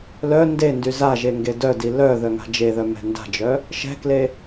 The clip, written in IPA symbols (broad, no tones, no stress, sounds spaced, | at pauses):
l œ n d e n d y z a ʒ e ŋ ɡ e d œ d i l œ ð œ ŋ a̤ d͡ʒ e ð œ m ɛ̤ n d a̤ d͡ʒ œ | ʃ ɛ̤ k l e